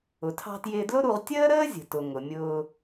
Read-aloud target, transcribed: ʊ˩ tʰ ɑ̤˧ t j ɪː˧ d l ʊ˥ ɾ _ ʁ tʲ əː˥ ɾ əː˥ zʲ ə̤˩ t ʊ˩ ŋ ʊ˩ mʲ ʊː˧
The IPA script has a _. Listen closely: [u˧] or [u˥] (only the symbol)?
u˧